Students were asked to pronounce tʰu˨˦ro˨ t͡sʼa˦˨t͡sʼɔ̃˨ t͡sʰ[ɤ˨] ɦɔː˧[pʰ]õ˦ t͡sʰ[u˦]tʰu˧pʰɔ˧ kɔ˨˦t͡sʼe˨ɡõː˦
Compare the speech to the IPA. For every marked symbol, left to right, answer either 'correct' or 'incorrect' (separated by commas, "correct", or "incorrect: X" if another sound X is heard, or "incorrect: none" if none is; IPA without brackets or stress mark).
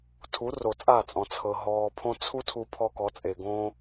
correct, correct, correct